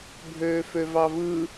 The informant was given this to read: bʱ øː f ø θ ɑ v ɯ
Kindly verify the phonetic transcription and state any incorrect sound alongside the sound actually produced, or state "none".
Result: θ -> v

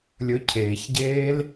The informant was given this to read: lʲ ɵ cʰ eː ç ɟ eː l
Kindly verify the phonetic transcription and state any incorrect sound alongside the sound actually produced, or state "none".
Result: none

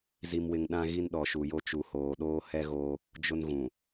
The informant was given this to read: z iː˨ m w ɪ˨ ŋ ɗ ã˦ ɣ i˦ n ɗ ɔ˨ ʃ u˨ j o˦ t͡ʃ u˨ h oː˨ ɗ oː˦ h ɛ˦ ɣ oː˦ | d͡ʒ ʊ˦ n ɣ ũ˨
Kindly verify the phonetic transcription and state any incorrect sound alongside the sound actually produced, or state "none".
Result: iː˨ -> i˨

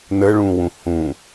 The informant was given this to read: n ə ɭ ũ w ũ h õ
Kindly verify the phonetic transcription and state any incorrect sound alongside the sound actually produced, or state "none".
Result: õ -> ũ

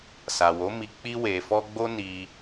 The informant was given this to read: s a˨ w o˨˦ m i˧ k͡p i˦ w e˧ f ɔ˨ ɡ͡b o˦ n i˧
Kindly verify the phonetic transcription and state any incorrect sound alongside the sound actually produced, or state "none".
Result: ɔ˨ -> ɔ˦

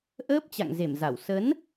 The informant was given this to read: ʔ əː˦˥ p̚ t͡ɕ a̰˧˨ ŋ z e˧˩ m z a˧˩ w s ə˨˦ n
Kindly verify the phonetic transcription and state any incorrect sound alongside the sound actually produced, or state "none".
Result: none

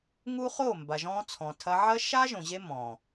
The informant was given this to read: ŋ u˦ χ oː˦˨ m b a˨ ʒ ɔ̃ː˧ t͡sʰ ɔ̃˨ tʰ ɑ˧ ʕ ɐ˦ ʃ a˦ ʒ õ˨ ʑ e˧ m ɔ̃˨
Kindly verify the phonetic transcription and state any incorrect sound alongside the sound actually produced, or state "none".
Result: ɑ˧ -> ɐ˧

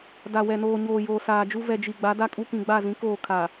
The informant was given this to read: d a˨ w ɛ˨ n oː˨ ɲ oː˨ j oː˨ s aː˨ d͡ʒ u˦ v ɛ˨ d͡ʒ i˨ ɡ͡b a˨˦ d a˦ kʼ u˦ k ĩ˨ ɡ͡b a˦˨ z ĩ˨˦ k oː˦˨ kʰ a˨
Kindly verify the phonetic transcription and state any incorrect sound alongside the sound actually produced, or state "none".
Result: none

